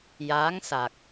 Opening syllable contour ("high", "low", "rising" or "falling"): rising